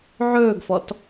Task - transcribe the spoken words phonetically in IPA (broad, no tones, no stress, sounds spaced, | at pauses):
ʕ ɵː ɡ f ɔ t